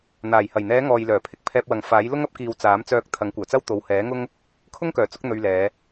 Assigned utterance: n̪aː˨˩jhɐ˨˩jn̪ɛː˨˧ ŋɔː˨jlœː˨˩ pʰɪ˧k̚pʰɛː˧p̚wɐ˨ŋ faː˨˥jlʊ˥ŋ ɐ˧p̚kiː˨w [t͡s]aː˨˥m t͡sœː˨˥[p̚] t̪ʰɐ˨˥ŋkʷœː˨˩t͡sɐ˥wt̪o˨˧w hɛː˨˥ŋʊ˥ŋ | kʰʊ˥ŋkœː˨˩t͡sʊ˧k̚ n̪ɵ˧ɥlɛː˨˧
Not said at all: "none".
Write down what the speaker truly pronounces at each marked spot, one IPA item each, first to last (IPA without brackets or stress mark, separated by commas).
t͡s, k̚